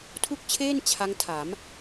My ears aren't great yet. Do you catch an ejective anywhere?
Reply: no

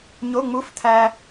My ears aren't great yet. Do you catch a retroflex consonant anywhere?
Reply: no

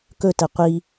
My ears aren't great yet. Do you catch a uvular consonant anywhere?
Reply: yes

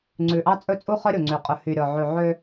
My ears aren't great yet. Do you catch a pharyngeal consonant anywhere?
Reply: yes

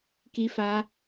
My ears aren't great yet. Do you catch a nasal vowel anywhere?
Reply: no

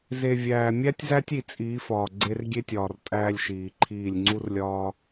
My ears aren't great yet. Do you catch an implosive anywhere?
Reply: no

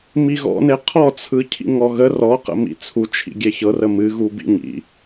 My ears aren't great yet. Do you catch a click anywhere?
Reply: no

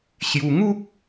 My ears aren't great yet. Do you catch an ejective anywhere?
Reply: no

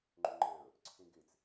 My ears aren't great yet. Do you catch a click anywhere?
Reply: yes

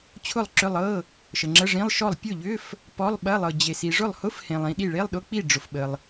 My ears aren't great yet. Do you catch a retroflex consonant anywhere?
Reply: yes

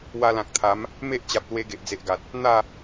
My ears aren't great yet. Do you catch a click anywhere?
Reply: no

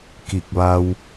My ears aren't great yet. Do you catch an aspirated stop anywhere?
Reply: no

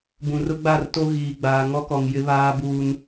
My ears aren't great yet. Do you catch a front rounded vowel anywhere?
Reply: no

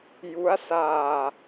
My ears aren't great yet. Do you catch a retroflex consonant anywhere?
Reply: no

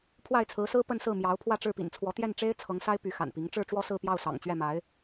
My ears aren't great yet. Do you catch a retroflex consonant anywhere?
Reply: yes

